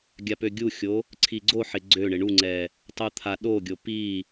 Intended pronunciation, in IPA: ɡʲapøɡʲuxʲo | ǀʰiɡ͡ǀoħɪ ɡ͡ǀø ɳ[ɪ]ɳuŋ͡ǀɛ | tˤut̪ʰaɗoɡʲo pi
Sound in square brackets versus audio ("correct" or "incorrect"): correct